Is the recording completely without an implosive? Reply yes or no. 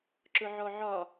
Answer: yes